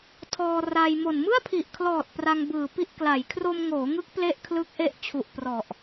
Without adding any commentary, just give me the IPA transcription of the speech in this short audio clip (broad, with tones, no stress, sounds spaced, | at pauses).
tʰ ɔː˧ r a˧ j m o˨˩ n m ɯ˥˩ a̯ pʰ i˨˩ ʔ kʰ l ɔː˨˩ t̚ p r a˧ ŋ b ɯː˨˩ p i˥˩ ʔ k l a˩˦ j kʰ r o˧ m ŋ oː˩˦ ŋ ɯ˦˥ k̚ p l e˥˩ ʔ kʰ l ɯ˦˥ k̚ ʔ e˦˥ ʔ t͡ɕʰ u˨˩ ʔ p r ɔ˨˩ ʔ